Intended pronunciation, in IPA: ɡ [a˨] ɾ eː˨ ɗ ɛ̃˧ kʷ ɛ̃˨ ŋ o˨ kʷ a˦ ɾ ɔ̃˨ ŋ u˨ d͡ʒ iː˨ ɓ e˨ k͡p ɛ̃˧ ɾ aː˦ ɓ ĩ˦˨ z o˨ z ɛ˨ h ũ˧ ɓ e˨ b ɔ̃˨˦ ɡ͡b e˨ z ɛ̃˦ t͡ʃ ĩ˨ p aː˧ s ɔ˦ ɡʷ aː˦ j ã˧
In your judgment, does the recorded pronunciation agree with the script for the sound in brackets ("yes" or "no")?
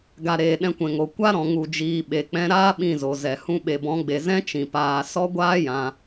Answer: yes